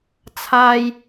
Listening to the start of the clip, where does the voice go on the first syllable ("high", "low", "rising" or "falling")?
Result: low